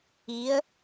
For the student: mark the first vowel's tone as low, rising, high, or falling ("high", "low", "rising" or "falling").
rising